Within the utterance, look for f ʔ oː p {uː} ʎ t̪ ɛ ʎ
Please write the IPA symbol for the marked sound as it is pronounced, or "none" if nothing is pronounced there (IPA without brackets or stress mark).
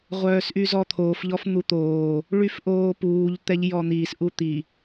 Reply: uː